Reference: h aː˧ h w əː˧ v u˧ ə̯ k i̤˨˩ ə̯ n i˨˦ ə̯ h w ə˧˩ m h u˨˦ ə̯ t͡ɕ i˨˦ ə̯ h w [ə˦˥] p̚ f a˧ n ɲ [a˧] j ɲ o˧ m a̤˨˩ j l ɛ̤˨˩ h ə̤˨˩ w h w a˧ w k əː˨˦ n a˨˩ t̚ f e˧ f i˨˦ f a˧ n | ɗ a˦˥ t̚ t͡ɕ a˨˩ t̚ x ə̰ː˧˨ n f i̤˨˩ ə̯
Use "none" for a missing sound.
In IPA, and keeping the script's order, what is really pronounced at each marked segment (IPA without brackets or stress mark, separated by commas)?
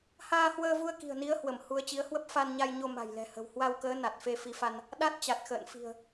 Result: ə˦˥, a˧